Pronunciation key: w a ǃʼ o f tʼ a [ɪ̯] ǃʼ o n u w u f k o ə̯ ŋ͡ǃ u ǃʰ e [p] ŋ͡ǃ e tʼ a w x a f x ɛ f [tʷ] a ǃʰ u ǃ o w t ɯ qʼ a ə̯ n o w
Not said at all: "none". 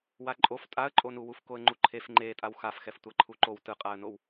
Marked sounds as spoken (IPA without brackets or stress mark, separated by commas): ə̯, f, tʷ